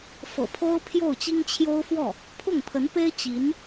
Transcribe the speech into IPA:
f ɤ̰˨˩ pʰ o˥ ʊ̯ pʰ j o˥˩ ʊ̯ t͡ɕ i˥ ŋ t͡ɕʰ j o˥ ʊ̯ f w ɔ˥˩ | pʰ ʊ˥˩ ŋ pʰ ə˧˥ n p e˥ ɪ̯ t͡ɕ i˧˥ n

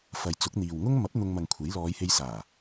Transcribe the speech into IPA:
f ɐ˧ j t͡s ʊ˨˥ k̚ n̪ iː˨ w ŋ ʊ˥ ŋ m ɐ˨˥ p̚ n̪ ʊ˧ ŋ m ɐ˨ ŋ kʷʰ e˨˥ j l ɔː˨˧ j h e˧ j s aː˨˩

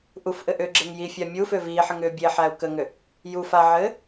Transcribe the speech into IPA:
ʔ u f ʔ ɘ ʔ ʏː ɡ͡ǁ e ŋ j i fʲ a mʲ u f ʏː v iː ħ ɘ ŋ ʏː bʲ e ħ æ u̯ k ə ŋ ʏ | j u f a ʕ ɘː

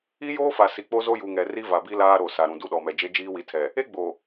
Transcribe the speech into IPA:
i˦ j oː˦ f a˨ s i˨ k͡p o˦ z o˦ j u˨ ŋ ɛ˨ r i˦ v a˨ b i˦ l aː˦ ɾ o˨ s a˨ ɾ ũ˨ d u˦ ɗ ɔ˨ m ɛ˨ d͡ʒ e˦ d͡ʒ iː˦ w i˨˦ tʰ ɛ˨ | e˦ ɡ͡b o˨

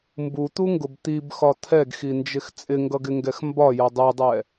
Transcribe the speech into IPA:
m b u t̪ u ŋ ɡ ʊ b t̪ i b x ɒ t̪ʰ ɛ ɡ x i n d͡ʒ ɪ x t͡sʼ ɪ ŋ ɡ ʌ ɡ ɪ ŋ ɡ ɛ x m b ɒ j ʌ dˤ ɛ dˤ ɛ

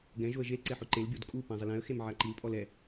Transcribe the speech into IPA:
ɡ ɛ̃ ʒ o ə̯ ʒ e l ǀ ɛ ħ ʊ ǃ e l bʲ o d kʼ u p ã zˤ ɪ l ɛ̃ ə̯ x e m ʕ a ǃ i l pʼ ɔ l ɛ

